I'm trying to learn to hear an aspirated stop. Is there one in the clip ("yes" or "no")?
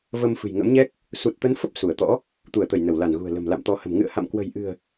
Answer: no